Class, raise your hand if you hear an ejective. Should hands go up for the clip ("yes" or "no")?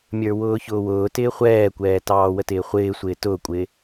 yes